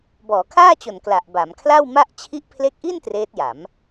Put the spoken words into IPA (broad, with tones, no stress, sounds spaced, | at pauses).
b ɔː˩˦ kʰ aː˥˩ t͡ɕ o˨˩ n k l a˨˩ ʔ b a˩˦ m kʰ l a˥˩ w m a˥˩ ʔ t͡ɕʰ i˦˥ ʔ pʰ l e˦˥ k̚ ʔ i˥˩ n t r eː˦˥ t̚ j a˩˦ m